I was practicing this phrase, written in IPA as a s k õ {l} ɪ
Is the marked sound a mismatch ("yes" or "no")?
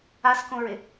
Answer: yes